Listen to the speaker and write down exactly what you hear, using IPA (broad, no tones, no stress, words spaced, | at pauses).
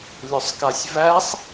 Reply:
lʲʊsˤkasʲvæsˤ